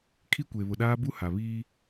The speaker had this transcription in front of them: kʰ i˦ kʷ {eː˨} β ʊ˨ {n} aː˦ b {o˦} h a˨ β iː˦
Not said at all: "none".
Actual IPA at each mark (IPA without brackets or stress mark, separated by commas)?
e˨, ɗ, u˦